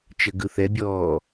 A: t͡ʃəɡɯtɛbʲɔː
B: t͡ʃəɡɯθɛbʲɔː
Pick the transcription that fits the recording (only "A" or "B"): B